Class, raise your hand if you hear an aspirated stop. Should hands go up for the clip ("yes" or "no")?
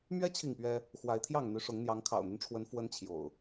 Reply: yes